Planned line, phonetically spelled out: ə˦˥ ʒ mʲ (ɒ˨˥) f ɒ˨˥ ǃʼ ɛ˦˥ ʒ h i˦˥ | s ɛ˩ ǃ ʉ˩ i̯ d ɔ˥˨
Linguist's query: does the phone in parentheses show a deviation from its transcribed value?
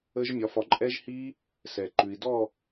no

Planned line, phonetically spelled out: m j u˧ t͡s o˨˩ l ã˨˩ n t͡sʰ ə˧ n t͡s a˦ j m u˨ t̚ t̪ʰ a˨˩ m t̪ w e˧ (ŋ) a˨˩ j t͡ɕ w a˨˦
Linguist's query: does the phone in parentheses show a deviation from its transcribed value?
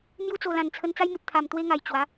no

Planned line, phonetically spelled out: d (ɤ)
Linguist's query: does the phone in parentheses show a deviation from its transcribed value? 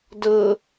no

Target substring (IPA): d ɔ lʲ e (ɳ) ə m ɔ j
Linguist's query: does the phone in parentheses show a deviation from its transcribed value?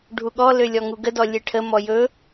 yes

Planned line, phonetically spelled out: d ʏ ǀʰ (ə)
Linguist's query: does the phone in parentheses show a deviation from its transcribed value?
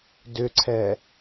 yes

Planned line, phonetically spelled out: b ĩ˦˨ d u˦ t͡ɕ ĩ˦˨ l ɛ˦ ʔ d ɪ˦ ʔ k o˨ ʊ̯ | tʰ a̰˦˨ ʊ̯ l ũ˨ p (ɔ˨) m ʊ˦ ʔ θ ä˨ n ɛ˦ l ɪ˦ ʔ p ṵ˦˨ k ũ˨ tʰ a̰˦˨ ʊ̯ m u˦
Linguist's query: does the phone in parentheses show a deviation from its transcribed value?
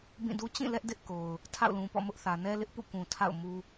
yes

